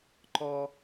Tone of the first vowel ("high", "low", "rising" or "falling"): high